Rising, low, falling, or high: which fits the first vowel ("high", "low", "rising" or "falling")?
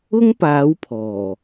high